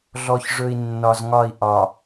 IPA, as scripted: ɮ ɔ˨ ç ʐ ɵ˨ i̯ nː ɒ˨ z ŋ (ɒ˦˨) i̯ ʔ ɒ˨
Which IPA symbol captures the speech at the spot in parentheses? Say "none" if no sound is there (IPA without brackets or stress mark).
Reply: ɒ˦˨